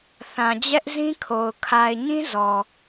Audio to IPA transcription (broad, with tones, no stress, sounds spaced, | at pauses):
θ ã˨ d͡ʑ ɛ˦ ʔ z ĩ˦ kʰ o˨ ʊ̯ kʰ a˨ ɪ̯ ɲ ĩ˦ z ɔ˨